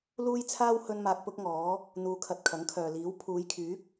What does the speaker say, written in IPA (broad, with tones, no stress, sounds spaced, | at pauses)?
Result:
l uː˥ j t͡sʰ aː˥ w h ɵ˥ n m aː˧ k̚ p ʊ˥ k̚ ŋ ɔː˨˥ | n̪ uː˧ kʰ ɐ˧ t̚ kʰ ɐ˨˥ ŋ kʰ œː˨ l iː˨˥ w pʰ uː˨˧ j kʰ yː˨˥ k̚